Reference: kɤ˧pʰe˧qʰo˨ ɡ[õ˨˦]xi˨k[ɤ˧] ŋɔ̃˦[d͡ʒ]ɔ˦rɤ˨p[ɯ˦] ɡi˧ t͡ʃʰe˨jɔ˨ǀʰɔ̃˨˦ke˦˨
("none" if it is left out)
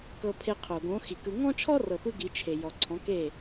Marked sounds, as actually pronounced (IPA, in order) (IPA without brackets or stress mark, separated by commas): õ˨˦, ɯ˧, t͡ʃʰ, ɯ˧